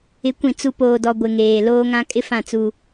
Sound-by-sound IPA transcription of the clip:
ɪ˨˦ kʷ ĩ˨ t͡s u˨ p oː˨ d ɔ˨ ɡʷ ɪ˨ ŋ eː˨ l oː˦ ŋ ã˦ kʼ ɪ˦ f ã˦˨ t͡s u˦

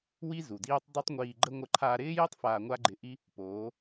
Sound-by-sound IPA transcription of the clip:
w i˦ z u˨ d iː˦ tˤ dˤ o˦ tˤ ŋʷ iː˧ ɡ͡ǃ ə˦ ŋʷ ə˧ ǃʰ aː˧ ɾ ɪː˦ j i˦ tˤ f aː˧ ŋʷ a˦ ɡ͡ǃ ɪ˧ ʔ i˦ | p oː˨˦

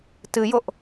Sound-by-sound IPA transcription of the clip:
t ɨ j o ʔ

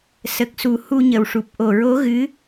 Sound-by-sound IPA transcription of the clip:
s ə˨˩ k̚ s u˨˩ h u˧ ɲ ə˨˩ w ʂ u˨˩ p̚ ʔ o˨˩ ɹ o˧˥ ɣ ɨ˧˥

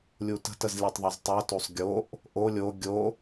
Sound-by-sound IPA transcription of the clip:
lʲ u t ə̤ t ə z lʲ e tˤ ðˤ e z tˤ o t o sˤ ɡʲ o ʔ | ʔ o lʲ o ɡʲ o

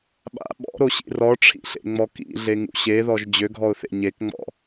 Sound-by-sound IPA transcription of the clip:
ɓ a̰ ɓ ɔ̰ ɾ o ɕ ḭ r ɔ ʈ͡ʂʰ ḭ ɬ ḛ ŋ͡m ɔ k ḭ ɮ e ŋ ṵ ɕ e ð ɔ ʒ d͡ʑ ø ɡʱ ɔ ʊ̯ θ ḛ ɲ e k ŋ͡m ɔ̰

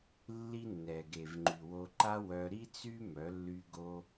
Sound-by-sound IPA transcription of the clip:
lː i˦ nː ɛ˨ ɡ e˨ v ŋ͡ǃ y˨ w o˧ ǃ a˦ w œ˧ ɾ i˦ t͡s y˦ m œ˨˦ lː y˧ ɡ o˧

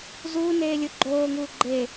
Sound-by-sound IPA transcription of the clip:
z uː n eː lʲ ɯ ɡ͡ǃ oː ŋ uː ɡ͡ǃ e

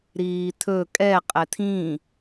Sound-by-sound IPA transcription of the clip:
ɾ iː t̪ʰ ɵ kʼ ɛ qʼ ɛ t̪ʰ ĩ

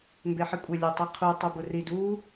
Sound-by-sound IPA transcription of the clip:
m b e ħ ɪ kʷʼ ɪ lʲ o tˤ i qʰ u tˤ u b ʊ r i d u

